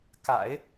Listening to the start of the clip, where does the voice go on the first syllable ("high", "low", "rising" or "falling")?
low